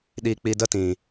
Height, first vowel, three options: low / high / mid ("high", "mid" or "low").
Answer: high